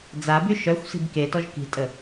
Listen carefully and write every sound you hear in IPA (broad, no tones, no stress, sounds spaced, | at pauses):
d͡z a b y ʃ œ xʷ s i̤ b k e t ɔ ʒ k i̤ tʼ ə